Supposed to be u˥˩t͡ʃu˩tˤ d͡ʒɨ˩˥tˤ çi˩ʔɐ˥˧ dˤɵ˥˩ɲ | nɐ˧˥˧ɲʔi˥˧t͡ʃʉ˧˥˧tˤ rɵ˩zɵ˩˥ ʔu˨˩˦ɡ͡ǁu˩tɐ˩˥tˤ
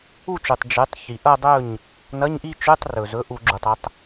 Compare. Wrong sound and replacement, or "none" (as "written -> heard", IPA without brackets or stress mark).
t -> tˤ